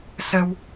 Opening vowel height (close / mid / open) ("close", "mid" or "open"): mid